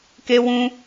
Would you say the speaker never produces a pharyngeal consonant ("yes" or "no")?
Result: yes